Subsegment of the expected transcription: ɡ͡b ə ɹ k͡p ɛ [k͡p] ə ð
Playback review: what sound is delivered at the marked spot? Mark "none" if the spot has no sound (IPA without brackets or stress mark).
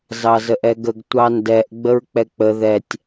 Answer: k͡p